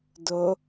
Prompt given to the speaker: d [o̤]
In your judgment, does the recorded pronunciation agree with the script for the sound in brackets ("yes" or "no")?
no